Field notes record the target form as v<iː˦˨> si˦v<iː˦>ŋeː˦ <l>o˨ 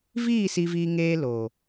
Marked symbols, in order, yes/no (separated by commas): yes, yes, yes